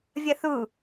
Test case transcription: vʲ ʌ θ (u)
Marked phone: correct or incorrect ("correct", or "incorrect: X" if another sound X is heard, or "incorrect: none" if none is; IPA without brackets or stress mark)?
correct